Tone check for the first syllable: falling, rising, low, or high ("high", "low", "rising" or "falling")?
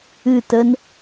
falling